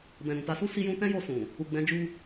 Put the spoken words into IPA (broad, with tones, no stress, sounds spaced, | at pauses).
b ɛ̃˨ ɾ ũ˨ t a˨˦ s u˦ s i˦ j ũ˦ t ɛ̃˦ j o˧ s ũ˨ | u˨ ɡ͡b ɛ̃˨˦ d͡ʒ u˦